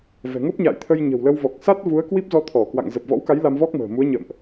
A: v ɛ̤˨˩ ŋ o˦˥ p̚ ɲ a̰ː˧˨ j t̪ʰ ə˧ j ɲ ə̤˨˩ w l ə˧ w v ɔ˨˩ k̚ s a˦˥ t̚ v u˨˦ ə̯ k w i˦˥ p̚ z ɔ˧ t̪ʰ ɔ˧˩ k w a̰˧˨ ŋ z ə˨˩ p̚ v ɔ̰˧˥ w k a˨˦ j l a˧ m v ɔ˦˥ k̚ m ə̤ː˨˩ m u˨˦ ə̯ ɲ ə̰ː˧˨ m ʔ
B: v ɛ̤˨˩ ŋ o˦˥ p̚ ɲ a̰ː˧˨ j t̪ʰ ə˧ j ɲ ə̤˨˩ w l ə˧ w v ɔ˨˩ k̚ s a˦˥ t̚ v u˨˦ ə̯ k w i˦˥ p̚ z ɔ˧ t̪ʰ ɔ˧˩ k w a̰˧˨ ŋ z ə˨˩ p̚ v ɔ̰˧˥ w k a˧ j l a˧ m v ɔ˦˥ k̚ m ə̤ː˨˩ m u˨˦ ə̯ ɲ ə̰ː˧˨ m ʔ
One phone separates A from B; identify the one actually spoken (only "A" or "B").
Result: A